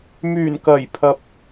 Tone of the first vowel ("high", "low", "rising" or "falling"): low